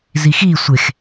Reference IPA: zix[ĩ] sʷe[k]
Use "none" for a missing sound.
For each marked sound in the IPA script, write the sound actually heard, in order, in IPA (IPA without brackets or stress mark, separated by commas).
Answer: i, x